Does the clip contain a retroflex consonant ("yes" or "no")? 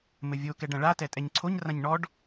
yes